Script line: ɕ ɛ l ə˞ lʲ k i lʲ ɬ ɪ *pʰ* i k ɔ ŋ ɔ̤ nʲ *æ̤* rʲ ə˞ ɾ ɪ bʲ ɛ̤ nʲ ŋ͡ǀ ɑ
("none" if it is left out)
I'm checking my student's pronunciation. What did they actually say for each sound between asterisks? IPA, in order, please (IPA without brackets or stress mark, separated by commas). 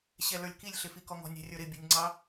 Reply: f, æ̤